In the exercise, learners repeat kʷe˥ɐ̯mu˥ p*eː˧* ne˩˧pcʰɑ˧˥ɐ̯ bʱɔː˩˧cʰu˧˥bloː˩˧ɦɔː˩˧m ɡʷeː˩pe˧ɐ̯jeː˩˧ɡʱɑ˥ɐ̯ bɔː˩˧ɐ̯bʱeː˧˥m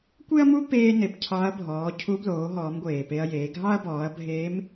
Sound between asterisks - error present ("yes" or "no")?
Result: no